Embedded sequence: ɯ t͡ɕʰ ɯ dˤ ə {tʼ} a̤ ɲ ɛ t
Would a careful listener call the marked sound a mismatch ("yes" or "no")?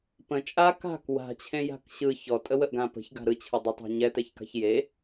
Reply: yes